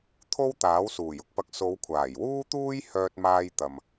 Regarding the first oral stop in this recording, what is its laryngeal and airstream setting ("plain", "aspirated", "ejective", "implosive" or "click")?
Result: aspirated